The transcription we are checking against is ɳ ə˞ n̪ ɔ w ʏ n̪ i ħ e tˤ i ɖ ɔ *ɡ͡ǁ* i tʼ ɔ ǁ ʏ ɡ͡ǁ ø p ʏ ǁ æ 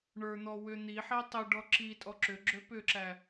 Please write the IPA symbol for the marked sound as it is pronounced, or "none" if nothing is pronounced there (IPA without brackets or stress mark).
ǁ